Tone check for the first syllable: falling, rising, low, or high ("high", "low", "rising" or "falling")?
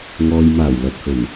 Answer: low